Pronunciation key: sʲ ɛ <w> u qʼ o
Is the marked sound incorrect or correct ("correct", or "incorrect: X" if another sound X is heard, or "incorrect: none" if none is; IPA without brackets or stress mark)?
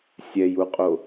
incorrect: j